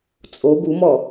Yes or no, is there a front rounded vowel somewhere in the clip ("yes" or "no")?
no